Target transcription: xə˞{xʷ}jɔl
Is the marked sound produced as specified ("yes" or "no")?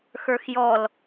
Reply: no